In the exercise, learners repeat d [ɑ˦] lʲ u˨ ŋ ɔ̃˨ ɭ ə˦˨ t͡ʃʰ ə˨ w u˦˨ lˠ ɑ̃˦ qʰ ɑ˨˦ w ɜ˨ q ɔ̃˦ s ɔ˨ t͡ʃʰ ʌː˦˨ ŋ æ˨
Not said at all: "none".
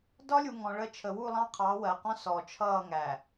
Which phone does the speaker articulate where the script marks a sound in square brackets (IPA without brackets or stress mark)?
ɒ˦